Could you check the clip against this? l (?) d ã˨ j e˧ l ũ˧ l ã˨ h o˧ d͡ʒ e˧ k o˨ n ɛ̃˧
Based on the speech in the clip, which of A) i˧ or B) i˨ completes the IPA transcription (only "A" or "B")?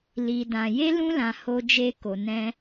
B